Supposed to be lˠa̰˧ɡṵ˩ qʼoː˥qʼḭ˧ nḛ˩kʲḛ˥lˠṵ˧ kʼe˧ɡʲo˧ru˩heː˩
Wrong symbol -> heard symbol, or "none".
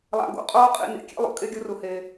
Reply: none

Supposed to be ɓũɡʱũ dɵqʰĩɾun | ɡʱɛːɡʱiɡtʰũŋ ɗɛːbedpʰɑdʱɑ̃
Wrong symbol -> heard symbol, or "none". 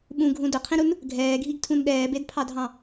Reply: ŋ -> n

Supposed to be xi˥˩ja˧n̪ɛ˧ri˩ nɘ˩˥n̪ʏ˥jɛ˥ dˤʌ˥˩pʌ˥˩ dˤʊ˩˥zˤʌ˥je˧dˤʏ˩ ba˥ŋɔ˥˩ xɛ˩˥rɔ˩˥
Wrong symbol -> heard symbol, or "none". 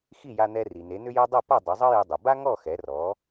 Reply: ɘ˩˥ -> e˩˥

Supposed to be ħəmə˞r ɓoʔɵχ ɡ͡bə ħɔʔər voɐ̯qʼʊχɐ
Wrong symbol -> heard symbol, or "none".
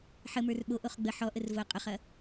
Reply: ɵ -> o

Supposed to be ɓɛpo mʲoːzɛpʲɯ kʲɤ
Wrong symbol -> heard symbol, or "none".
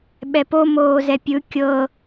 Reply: mʲ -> m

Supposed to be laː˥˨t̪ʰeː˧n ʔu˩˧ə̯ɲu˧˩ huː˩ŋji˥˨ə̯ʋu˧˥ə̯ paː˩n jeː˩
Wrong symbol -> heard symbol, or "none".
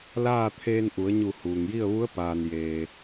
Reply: none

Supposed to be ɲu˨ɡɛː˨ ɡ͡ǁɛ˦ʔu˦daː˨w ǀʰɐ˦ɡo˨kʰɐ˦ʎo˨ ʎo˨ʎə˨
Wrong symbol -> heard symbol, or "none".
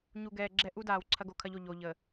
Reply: none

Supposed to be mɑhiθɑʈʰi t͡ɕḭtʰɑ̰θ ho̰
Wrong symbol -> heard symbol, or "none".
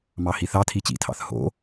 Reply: ʈʰ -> tʰ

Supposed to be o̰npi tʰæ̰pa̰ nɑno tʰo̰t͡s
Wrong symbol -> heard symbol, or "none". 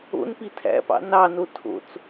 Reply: a̰ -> ɑ̰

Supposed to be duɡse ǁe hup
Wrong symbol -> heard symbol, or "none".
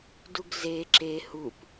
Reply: s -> z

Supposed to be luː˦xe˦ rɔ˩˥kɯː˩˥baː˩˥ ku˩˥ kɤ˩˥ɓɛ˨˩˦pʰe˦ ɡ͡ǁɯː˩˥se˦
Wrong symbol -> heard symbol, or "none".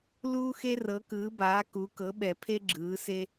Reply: ɔ˩˥ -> ɤ˩˥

